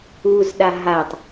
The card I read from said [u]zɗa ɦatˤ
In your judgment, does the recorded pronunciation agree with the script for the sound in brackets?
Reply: yes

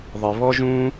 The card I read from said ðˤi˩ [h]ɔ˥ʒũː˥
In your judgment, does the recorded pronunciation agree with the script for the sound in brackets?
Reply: no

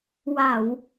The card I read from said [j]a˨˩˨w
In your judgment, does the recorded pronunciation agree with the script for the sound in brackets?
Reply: no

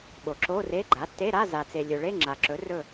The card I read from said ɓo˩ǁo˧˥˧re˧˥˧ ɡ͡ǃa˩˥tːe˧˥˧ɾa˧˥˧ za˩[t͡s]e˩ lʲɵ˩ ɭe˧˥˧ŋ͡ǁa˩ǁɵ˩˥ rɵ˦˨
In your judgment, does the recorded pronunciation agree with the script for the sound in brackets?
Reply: yes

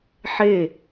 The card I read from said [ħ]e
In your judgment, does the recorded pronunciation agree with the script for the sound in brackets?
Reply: yes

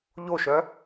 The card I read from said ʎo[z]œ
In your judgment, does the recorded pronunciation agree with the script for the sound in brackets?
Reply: no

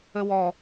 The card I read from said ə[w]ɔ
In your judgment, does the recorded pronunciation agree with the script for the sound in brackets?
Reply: yes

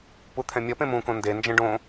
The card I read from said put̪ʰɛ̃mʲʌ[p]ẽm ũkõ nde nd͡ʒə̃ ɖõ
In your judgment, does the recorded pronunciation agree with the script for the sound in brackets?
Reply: yes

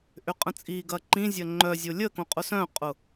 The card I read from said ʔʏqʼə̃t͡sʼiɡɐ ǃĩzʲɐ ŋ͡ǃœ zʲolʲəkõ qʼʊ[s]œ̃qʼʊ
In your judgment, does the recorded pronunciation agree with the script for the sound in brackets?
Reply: yes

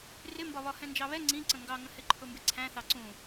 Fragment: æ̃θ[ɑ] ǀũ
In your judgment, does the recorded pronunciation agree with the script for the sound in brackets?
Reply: yes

